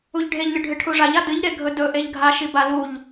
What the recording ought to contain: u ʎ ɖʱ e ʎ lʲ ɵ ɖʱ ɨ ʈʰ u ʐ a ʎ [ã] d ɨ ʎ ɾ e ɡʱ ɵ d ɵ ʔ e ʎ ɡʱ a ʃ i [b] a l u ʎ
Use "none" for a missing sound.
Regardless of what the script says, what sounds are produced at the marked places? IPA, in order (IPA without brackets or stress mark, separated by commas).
a, b